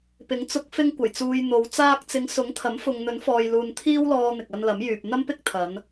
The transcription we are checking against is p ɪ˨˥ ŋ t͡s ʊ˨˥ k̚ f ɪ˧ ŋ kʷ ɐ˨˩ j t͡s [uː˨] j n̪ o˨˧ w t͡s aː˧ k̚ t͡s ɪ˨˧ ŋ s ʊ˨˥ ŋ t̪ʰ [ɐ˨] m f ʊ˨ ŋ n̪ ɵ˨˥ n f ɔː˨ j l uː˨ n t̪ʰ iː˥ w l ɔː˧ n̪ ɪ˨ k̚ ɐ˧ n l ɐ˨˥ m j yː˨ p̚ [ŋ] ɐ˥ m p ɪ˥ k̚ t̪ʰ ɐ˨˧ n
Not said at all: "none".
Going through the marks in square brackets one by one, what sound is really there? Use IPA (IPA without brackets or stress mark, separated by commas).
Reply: uː˨, ɐ˨˥, n̪